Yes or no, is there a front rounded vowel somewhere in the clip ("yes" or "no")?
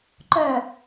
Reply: yes